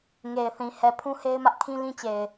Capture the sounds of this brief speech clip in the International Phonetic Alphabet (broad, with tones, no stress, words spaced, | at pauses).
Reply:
ŋe˨ɪ̯θĩ˨ hɛ˨ pʰũ˦he˦ɪ̯mä˦ʔkʰĩ˦ lĩ˦t͡ɕe˨ɪ̯